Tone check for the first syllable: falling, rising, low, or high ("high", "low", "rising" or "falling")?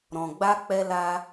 low